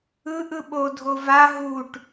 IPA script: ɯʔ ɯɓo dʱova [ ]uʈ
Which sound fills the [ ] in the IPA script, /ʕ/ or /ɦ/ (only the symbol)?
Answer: ɦ